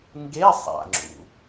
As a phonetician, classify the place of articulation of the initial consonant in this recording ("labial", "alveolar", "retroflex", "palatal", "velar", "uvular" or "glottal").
velar